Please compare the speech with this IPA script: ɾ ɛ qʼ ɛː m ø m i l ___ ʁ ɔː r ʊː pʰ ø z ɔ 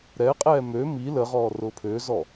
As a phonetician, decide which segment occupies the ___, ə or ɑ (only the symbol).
ə